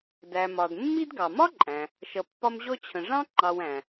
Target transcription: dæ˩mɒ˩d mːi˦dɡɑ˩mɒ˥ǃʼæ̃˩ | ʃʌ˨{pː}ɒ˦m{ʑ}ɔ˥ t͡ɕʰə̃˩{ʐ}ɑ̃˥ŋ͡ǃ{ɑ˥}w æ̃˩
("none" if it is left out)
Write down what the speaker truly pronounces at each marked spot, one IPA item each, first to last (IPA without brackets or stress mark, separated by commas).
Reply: pː, ʑ, ʐ, ɑ˨